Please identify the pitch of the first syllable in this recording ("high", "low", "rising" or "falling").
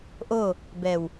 falling